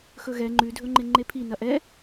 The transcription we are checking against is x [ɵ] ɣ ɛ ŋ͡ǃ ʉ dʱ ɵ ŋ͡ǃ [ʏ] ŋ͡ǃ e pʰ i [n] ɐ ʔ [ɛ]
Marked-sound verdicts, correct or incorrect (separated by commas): correct, incorrect, correct, correct